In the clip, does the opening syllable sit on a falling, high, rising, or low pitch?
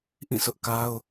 falling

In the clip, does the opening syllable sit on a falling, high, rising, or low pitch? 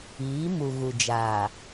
rising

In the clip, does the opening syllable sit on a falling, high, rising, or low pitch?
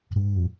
low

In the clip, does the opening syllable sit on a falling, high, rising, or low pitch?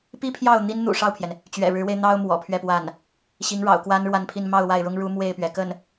high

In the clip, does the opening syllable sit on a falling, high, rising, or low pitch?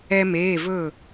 high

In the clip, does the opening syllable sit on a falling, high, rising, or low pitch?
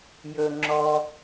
low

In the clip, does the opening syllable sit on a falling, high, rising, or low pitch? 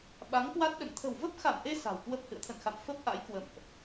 rising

